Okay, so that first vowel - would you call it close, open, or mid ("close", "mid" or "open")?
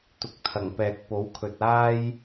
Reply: close